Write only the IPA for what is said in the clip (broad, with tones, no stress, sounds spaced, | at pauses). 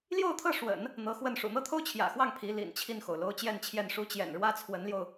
l j o˥˧ ʊ̯ t̪ʰ ɤ˥˩ ʂ w ə̰˨˩˦ n | n̪ ɤ˧˥ x w ə˥˩ n ʂ ṵ˨˩ n̪ ɤ˥ t̪ʰ o˥ ʊ̯ t͡ɕʰ j ä̰˨˩ x w ɑ˥˩ ŋ pʰ i˧˥ l ḭ˨˩ n t͡ɕʰ i˥˩ n x o˩ ʊ̯ l o˥ ʊ̯ t͡ɕ j ɛ˥˧ n t͡ɕʰ j ɛ˥˩ n ʂ u˥ t͡ɕ j ɛ̰˨˩ n ɻ w ä˥ t͡sʰ w ə˧˥ n l j o˧ ʊ̯